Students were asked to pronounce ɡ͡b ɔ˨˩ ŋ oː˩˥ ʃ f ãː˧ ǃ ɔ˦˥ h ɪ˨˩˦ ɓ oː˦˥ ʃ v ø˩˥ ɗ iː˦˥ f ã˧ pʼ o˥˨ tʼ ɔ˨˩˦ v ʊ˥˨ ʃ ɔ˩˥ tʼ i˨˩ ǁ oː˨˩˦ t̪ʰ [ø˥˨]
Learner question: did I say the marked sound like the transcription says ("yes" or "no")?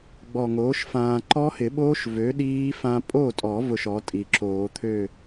yes